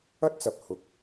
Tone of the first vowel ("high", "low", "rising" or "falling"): high